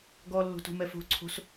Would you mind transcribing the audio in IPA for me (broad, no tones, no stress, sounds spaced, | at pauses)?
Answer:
ɡ ɔ lː o̤ t o̤ m ɛ f o̤ ǀʰ o̤ s